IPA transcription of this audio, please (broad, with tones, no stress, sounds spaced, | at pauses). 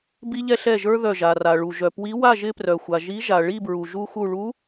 b i˧ ʎ ɛ˧ ɬ ɛ˧˩ ʒ ə˞˧ ð œ˧˩ ʒ a˩ r a˩ ɭ u˩ ʒ œ˩ p w i˧˥ w a˥˧ ʒ ɪ˧ p r œ˩ xʷ a˩ ʒ i˧˥ ʒ a˩ ɭ i˥˧ b ɹ u˩ ʒ u˧ x u˧˩ ɭ u˧˥